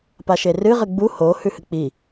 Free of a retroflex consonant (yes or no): yes